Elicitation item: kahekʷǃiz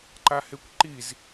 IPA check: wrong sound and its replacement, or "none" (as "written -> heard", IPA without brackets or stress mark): k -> ǃ